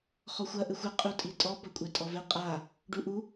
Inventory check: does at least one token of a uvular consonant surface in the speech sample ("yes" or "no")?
yes